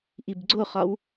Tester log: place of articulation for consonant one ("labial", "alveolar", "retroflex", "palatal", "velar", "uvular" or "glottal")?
glottal